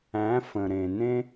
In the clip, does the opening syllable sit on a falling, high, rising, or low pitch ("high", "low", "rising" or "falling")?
rising